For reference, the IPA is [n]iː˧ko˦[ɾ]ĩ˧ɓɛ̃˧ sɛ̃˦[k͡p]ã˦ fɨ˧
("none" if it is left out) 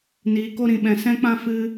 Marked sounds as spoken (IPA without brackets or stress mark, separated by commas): n, ɾ, k͡p